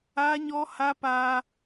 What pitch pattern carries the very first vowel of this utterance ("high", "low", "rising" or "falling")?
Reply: high